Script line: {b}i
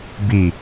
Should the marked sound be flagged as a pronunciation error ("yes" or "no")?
no